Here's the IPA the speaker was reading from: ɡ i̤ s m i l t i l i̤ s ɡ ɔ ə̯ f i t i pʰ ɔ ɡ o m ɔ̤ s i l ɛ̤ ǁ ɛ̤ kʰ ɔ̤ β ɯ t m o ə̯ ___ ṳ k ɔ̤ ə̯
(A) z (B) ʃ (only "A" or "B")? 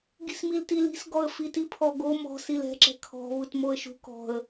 B